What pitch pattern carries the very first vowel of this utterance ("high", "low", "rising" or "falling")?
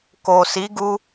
low